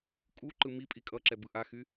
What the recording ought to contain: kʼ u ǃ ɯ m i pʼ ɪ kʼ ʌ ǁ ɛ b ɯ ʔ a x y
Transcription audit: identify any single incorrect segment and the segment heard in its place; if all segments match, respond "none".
ɪ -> i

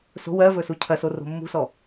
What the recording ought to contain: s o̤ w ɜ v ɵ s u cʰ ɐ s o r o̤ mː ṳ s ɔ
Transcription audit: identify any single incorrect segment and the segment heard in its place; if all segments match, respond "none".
none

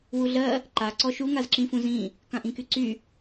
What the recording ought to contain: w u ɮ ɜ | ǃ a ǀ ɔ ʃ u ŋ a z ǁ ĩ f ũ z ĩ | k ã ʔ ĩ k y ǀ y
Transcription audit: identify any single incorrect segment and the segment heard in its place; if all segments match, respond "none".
none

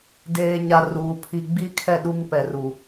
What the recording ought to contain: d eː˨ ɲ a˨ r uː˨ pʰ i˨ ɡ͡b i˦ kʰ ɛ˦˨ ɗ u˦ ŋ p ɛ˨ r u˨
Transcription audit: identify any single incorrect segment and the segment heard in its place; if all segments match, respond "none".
none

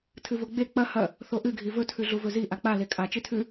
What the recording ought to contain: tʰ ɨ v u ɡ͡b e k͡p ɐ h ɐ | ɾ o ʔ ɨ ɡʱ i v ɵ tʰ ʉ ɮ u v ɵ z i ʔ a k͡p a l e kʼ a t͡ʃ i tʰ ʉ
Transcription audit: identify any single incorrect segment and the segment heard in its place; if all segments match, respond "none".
ɾ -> θ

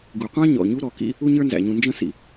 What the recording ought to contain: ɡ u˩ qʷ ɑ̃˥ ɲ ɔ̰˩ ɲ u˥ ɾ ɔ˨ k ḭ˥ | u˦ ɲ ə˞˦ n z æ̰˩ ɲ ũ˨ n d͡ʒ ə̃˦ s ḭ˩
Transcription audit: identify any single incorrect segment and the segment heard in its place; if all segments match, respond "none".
none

